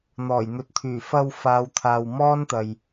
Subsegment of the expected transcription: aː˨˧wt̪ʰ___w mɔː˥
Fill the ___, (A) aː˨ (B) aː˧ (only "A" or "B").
A